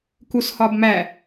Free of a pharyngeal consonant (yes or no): yes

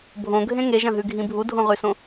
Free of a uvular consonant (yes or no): no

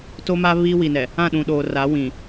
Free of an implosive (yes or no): no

